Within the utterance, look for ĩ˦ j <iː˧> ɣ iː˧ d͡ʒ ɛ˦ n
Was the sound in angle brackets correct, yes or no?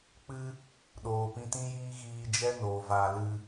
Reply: no